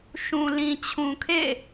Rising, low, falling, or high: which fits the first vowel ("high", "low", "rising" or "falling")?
low